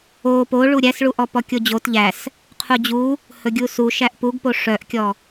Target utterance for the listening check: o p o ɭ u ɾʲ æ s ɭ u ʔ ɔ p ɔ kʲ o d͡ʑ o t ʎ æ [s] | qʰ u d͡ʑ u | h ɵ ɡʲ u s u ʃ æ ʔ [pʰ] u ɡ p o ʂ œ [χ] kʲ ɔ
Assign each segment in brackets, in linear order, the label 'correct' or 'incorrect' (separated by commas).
correct, incorrect, incorrect